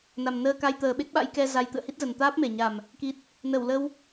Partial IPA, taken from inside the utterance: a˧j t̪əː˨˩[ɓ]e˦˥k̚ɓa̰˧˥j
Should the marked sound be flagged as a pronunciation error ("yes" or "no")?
no